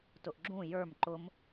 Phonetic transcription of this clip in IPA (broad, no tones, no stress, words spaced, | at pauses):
tʊʔɡ͡ǁũ jə˞m ǃʊm